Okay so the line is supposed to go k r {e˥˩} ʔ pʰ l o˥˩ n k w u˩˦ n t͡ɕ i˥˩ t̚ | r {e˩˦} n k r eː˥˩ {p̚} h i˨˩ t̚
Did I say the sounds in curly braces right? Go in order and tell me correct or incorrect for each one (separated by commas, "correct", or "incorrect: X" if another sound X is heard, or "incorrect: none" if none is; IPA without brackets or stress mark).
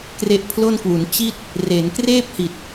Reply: incorrect: e˦˥, correct, correct